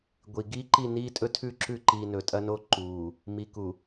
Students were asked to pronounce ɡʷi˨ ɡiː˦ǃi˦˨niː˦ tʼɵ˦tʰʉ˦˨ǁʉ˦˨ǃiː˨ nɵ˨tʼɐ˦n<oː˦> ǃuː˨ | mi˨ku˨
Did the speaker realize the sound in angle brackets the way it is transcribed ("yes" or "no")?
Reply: no